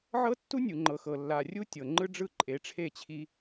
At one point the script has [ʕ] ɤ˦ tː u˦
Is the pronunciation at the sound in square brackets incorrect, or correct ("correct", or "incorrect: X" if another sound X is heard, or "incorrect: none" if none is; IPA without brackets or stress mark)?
correct